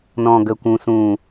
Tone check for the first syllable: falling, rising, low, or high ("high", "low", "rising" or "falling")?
low